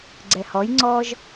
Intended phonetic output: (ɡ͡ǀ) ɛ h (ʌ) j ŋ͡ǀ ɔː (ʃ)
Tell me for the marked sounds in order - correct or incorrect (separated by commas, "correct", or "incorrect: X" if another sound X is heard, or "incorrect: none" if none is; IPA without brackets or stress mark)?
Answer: correct, incorrect: ɔ, incorrect: ʒ